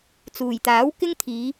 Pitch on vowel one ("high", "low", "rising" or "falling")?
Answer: low